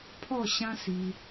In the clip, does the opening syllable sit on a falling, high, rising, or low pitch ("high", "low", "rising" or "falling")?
falling